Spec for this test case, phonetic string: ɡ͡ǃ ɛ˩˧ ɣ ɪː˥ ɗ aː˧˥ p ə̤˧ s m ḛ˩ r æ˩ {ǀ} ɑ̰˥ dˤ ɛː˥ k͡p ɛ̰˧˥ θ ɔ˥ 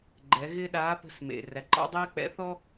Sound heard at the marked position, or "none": ǃ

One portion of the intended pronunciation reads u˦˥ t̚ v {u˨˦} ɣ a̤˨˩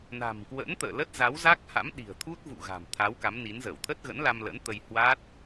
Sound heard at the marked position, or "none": ṵ˧˨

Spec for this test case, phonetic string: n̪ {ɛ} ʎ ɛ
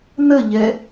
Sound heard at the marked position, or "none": ə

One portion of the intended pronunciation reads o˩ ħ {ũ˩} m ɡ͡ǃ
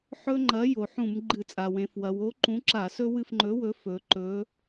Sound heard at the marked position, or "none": ũ˧˩˧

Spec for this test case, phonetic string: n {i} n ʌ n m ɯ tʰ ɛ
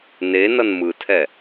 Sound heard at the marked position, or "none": e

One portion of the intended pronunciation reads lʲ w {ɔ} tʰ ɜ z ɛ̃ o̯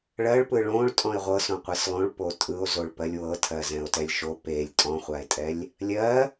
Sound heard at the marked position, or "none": ɤ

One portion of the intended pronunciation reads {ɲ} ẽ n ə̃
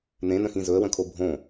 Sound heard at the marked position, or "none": n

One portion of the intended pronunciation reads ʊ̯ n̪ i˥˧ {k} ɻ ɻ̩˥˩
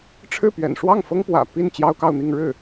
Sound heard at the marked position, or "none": ŋ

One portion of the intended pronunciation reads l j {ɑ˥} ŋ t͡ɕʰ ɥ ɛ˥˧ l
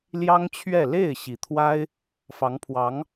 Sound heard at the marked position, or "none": ɑ˥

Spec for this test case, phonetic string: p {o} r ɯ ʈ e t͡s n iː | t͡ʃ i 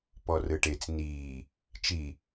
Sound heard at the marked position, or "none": ɔ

